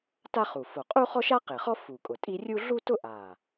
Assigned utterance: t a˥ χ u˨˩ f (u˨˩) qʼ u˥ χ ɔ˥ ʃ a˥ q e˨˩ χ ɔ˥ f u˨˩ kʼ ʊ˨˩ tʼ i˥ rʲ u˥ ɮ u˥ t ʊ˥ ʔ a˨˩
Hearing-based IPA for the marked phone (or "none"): o˨˩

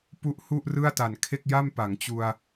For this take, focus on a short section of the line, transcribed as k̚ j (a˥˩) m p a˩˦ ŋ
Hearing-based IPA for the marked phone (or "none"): a˥˩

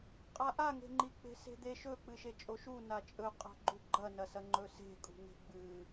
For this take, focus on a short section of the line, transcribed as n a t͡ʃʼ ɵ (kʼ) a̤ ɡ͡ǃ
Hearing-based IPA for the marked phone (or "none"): qʼ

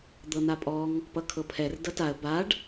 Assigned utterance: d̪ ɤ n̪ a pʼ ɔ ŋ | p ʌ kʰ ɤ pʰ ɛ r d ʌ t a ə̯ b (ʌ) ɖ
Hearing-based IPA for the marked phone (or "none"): a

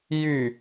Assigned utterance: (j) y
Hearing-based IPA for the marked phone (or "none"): j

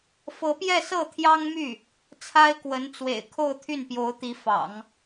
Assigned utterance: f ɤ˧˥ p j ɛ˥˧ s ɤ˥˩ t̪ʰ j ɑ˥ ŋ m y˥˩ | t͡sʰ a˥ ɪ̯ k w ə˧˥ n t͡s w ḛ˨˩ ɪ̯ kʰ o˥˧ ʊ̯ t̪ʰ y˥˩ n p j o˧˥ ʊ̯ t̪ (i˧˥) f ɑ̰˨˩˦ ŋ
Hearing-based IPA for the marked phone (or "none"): i˧˥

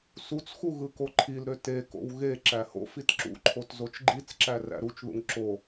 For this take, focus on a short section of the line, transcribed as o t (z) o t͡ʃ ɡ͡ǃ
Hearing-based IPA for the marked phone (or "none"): z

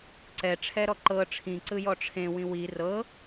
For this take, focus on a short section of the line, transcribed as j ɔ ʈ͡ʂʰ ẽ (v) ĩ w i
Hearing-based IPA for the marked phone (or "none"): w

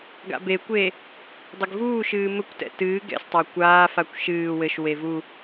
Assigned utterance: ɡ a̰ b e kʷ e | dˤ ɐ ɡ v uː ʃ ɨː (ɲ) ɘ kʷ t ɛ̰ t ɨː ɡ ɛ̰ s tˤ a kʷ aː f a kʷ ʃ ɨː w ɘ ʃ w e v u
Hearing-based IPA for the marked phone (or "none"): m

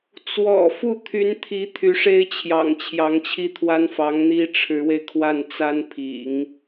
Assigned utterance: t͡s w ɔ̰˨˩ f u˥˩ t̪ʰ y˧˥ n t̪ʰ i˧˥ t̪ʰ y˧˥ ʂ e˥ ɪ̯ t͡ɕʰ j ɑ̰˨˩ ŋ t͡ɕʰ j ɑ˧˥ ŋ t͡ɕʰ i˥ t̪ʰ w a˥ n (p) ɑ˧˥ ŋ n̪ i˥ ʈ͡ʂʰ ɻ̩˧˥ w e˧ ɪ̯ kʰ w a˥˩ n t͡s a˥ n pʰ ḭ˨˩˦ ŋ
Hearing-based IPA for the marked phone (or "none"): f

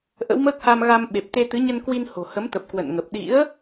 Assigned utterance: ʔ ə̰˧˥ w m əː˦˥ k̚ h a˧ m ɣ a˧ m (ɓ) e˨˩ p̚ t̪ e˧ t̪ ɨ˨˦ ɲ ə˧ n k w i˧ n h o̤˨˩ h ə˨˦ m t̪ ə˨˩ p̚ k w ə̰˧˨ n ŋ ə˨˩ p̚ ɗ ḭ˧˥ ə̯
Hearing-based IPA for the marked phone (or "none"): ɓ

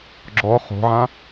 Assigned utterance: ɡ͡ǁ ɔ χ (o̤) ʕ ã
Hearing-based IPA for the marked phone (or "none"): o̤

